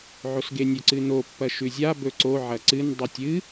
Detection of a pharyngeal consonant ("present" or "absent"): present